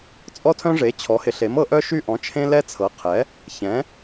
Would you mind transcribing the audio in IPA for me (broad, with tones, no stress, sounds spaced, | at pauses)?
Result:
t͡sʼ ɔ˦ tʰ œ̃˦ ʐ e˩˥ t͡ɕʰ ɔ˩˥ h ɪ˩˥ ɬ e˩˥ m ɤ˦ ʔ œ˦ ʃ y˦ ʔ ɔ̃˩˥ t͡ʃʰ ẽ˦ l ɛ˦ t͡sʰ ɤ˩˥ qʰ ɛ˩˥ | ç ɛ̃˩˥